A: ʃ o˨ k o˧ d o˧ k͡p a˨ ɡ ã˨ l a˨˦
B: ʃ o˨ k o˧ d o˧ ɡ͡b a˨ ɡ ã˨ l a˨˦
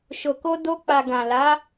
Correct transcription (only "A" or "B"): A